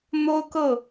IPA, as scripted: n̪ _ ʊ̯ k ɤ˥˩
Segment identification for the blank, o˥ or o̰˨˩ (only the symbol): o˥